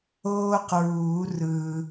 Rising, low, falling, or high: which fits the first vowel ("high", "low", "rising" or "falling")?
high